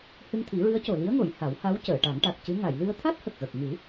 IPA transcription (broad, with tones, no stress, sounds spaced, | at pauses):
h ɨ˧ ŋ t̪ʰ i˨˩˦ ɹ ɨ˧˥ ə̯ c o˨˩ l i˧˥ ə̯ ŋ o˨˩˨ j h a˨˩˦ w h a˧˥ w c əː˨˩˨ ʈ a˨˩˦ ŋ ʈ a˨˩ k̚ c ɨ˧˥ ŋ a˨˩˨ j l ɨ˧ ə̯ t̪ʰ a˦˥ t̚ h ə˨˩ k̚ ɣ ə˨˩ k̚ ŋ ɨ˨˩˦